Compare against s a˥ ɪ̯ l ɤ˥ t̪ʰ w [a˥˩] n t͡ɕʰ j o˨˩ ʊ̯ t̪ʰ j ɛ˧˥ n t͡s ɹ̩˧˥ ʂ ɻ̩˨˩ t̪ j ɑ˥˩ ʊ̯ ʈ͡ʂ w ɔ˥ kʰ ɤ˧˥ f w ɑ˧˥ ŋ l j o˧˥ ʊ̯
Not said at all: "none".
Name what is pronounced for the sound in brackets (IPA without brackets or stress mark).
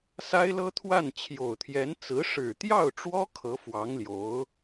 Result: a˥˩